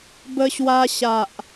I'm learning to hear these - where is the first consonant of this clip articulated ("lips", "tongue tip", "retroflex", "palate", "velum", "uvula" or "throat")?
lips